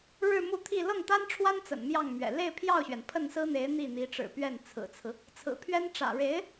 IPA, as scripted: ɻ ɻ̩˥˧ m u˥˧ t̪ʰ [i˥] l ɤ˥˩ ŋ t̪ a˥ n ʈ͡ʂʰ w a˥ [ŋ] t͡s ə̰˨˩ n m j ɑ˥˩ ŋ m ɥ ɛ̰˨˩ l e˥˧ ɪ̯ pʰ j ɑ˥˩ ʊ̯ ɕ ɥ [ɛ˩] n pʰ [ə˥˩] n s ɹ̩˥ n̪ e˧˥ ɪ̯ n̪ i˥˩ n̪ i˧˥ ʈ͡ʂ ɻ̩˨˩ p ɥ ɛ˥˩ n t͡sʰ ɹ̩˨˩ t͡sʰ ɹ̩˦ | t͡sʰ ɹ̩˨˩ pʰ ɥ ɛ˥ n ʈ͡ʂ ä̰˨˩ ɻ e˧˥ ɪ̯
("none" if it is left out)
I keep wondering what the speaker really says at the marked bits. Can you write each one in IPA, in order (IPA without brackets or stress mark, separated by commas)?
i˥˧, n, ɛ˩, ə˥˩